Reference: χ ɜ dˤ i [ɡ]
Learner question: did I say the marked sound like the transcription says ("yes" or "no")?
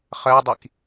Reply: no